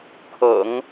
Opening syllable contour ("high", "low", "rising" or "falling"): low